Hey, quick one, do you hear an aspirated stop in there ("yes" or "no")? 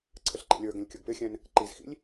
yes